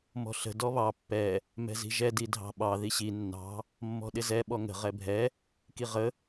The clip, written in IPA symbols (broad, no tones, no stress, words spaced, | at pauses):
mɔ̤ɬə̤ dɔβɑ pːɛ | mɛ̤zi̤ʒɛ didʱɑ̤ɓɑ ðiɕi nːɑ̤ | mːɔ̤ɗɪzɛ ɓɔŋə̤ ʁɛbʱɛ | kiʁə